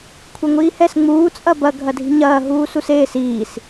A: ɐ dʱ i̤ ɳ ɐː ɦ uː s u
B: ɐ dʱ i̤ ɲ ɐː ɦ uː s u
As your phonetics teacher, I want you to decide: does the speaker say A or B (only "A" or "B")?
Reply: B